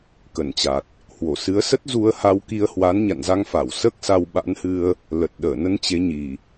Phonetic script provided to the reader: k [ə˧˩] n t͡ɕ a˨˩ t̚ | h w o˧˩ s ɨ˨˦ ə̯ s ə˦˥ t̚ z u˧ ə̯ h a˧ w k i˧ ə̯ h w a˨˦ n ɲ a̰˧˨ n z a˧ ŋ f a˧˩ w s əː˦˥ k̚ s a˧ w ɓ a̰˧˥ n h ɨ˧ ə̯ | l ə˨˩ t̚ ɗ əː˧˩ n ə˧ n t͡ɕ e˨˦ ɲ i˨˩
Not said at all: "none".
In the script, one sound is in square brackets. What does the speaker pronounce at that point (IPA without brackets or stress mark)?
ə˧˩